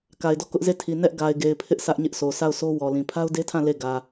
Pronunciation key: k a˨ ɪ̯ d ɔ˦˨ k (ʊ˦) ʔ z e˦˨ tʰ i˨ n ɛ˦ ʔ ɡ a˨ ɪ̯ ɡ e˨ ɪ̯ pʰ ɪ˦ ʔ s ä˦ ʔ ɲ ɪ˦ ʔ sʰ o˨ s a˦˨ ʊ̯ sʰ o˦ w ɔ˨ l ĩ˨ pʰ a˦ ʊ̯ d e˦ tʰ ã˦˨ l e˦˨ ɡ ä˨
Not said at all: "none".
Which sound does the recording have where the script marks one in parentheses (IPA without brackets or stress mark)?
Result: ʊ˦